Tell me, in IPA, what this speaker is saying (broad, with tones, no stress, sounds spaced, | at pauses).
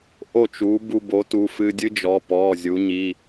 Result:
ʔ o˥˨ t͡ʃ u˩˥ b u˧ b o˩˥ t u˩˧˩ f ɨ˧ dʲ ɨ˦˥ d͡ʒ ɔ˩˧˩ p ɔ˩˧˩ zʲ u˩˧ ɲ i˩˧˩